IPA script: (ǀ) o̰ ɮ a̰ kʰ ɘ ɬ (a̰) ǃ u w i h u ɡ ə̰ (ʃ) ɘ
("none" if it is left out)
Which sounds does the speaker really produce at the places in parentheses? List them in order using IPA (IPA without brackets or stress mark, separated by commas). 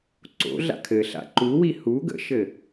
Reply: ǀ, a̰, ʃ